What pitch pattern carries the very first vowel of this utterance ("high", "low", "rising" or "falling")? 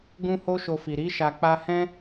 high